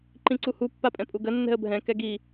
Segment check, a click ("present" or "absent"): present